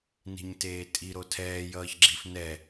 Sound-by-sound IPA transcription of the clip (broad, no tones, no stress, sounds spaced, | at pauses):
n i̤ ɲ t eː tʼ i ɾ o tʰ ɛː j ʌː ç ɡ͡ǁ i f n ɛ